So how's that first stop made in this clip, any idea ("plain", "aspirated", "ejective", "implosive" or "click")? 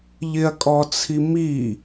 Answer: ejective